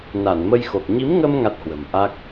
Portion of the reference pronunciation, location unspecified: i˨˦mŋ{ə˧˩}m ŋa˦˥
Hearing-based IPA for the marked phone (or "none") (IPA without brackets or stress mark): ə˧